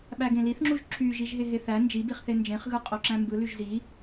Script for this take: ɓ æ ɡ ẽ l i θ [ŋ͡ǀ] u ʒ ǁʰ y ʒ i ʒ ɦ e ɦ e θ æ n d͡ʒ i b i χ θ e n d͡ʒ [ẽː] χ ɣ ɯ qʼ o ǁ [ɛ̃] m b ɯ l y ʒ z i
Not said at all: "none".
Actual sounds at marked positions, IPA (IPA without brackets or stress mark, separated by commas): ŋ͡ǁ, ẽ, æ̃